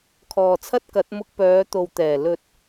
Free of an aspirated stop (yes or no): no